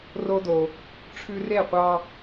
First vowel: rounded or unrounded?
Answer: rounded